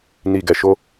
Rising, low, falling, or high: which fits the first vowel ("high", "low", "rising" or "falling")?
low